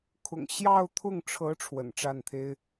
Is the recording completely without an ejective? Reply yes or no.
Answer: yes